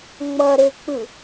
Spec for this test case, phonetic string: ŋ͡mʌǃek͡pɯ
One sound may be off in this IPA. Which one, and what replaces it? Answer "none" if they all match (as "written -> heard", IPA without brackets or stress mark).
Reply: ǃ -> ɾ